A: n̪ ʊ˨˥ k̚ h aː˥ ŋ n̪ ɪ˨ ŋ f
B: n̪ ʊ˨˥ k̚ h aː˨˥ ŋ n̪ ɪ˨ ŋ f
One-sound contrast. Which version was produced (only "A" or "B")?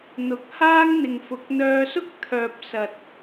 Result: A